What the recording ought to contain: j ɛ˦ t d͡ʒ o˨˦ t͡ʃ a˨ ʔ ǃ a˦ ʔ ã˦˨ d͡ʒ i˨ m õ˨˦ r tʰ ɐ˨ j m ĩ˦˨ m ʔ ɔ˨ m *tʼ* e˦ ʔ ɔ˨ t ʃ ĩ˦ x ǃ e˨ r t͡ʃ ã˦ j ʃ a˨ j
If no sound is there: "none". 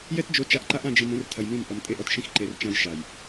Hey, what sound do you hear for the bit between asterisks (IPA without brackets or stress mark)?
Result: tʼ